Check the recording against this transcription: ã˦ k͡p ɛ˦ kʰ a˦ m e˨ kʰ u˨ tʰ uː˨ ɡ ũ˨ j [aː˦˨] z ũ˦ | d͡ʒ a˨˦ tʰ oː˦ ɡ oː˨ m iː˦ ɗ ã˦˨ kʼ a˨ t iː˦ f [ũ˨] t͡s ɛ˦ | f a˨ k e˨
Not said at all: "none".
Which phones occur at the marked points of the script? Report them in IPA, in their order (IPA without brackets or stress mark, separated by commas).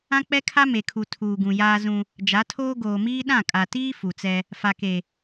aː˦, u˨